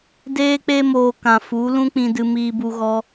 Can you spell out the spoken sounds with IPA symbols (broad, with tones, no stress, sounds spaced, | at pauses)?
d eː˦ k͡p e˦ m oː˧ k ã˨ f u˨˦ l ũ˦ k͡p ĩ˧ d ɨ˧ m iː˧ b u˧ ɣ ɔ˧